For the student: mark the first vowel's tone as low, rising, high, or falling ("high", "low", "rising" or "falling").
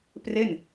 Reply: falling